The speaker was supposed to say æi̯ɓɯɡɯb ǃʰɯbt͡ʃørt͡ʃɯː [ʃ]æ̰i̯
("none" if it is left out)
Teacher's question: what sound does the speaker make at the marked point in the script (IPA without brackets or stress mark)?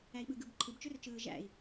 ʒ